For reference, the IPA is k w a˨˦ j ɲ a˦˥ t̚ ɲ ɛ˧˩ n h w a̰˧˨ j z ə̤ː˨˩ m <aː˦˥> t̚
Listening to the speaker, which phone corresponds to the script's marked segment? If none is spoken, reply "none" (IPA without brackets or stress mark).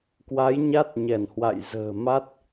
a˦˥